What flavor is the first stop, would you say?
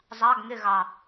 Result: plain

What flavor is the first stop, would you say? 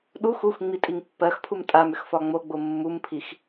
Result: implosive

